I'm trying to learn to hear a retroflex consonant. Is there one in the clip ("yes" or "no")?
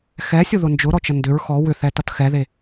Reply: no